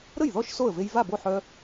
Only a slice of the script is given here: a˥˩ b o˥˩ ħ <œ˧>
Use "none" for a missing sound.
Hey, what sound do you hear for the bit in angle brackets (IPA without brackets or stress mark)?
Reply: œ˧